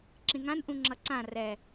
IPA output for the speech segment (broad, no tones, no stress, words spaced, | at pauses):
ǁĩŋãn ʔũŋ͡ǁʌǀã rɛ